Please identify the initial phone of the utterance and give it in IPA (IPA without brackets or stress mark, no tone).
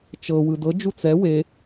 t͡ʃ